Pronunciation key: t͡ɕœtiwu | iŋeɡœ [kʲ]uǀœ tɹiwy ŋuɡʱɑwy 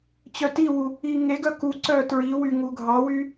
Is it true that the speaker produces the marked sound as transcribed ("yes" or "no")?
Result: no